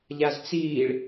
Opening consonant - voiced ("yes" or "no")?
yes